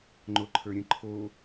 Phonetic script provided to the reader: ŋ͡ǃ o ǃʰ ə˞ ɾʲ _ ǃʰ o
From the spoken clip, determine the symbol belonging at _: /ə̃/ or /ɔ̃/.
ə̃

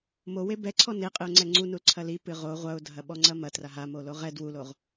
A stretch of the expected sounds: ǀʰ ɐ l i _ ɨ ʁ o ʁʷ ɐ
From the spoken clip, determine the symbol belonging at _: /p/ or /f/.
p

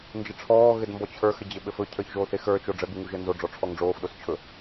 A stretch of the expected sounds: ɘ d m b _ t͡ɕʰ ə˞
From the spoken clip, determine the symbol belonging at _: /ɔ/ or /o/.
ɔ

